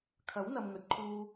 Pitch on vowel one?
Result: rising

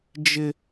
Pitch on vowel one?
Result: high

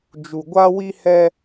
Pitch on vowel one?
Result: low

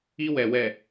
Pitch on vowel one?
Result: high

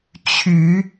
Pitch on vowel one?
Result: rising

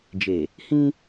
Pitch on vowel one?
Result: low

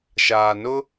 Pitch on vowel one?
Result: low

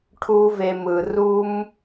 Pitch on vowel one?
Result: high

